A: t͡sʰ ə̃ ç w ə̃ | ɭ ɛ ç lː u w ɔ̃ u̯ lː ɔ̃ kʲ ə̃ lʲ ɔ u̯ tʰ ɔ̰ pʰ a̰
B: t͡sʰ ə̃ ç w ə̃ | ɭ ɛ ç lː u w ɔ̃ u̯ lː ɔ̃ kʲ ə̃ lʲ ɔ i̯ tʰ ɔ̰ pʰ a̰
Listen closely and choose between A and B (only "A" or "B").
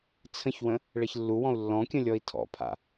B